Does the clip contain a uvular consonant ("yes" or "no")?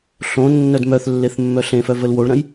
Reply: no